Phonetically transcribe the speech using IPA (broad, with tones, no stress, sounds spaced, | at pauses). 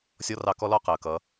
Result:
sʲ ɔ˦ r ɑ˧ k ɔ˦ l ɔ˦ q əː˨ k ʌ˨˦